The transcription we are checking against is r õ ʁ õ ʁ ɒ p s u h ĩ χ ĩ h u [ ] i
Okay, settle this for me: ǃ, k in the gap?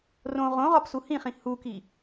k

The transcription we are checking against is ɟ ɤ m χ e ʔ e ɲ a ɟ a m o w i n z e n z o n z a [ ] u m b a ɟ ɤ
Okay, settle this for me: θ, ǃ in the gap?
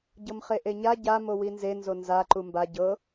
ǃ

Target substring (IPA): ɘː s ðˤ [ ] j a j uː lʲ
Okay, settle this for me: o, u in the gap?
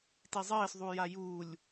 u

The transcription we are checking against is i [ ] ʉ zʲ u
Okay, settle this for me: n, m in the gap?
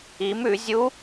m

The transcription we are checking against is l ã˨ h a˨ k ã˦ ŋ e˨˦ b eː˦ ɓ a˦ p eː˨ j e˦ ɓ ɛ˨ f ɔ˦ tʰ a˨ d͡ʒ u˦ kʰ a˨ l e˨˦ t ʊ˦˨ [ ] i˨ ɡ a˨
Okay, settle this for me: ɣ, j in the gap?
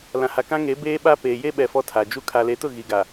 ɣ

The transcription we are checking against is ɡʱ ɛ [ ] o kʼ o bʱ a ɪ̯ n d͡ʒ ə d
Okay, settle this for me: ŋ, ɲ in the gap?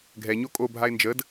ɲ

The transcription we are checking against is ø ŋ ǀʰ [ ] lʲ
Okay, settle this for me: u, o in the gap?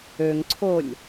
o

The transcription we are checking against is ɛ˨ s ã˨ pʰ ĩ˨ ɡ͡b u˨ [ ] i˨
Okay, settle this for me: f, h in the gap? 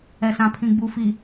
f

